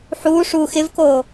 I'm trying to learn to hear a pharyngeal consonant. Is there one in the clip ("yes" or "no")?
yes